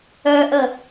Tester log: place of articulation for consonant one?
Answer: glottal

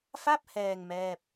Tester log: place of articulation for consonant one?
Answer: labial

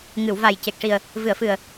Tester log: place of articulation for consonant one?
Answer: velar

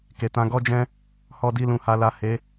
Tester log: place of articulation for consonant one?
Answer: velar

